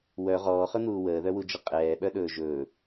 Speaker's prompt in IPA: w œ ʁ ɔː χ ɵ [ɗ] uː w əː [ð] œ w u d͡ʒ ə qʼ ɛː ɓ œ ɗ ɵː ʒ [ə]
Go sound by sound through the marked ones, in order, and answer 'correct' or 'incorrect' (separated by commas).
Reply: incorrect, correct, incorrect